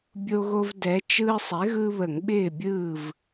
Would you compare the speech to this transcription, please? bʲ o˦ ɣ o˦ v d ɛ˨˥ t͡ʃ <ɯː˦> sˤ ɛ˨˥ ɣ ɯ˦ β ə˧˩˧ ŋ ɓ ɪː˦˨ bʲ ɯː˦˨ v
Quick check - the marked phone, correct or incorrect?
correct